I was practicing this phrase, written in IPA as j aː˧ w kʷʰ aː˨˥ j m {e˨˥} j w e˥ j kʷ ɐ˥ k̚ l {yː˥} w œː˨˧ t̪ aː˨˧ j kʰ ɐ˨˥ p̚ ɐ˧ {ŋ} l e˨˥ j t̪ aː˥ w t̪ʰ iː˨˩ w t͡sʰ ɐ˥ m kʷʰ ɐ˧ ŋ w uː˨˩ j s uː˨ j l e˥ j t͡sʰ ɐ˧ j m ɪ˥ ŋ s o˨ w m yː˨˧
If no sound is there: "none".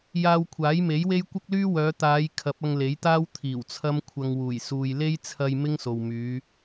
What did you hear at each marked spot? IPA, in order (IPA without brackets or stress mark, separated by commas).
e˨˥, yː˥, ŋ